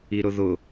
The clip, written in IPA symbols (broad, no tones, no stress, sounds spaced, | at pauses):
i ɾ ʊ ð ʊ